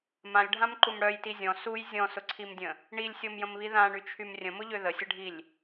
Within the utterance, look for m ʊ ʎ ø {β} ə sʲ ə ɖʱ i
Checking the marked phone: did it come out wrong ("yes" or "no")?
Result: yes